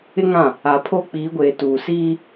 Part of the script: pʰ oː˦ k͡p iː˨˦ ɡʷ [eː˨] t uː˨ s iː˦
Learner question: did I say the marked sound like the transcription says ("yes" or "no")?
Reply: yes